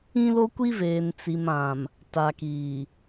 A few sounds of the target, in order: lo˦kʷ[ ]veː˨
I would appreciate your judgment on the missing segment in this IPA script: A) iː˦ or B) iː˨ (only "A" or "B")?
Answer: A